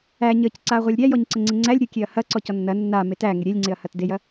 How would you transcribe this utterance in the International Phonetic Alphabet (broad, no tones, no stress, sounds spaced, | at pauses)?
æ ɲ ə c ǀ a ʁʷ ɐ lʲ ɾʲ æ j ɔ ɲ ǀ ə ŋ͡ǀ ɪ ŋ͡ǀ æ lʲ ɾʲ ʊ kʲ e ɐ̯ h ɐ ǀ ɔ c ɔ nː ɐ nː a m e t æ ŋ ɪ ɾʲ e lʲ ŋ͡ǀ ɪ ɐ̯ h ɐ t d e j ɐ